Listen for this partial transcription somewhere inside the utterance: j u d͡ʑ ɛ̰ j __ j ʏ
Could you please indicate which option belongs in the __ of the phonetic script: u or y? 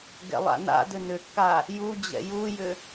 u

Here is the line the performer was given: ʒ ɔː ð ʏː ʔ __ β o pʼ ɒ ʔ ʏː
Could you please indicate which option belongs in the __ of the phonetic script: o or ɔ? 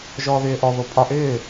ɔ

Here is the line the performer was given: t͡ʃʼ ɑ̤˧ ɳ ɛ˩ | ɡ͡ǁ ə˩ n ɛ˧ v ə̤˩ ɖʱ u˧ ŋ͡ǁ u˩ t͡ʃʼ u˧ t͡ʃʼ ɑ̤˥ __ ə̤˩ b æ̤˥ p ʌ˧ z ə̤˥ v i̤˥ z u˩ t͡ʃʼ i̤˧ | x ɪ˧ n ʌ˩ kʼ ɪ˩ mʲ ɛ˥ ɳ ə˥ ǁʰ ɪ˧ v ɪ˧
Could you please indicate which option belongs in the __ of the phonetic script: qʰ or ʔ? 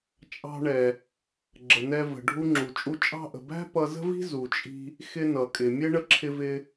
ʔ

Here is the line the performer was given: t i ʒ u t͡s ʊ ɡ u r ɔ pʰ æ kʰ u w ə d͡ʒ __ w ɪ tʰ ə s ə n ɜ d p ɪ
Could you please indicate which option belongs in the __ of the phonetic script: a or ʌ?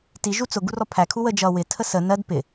ʌ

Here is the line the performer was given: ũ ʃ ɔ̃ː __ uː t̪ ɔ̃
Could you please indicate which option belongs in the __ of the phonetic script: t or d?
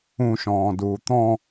d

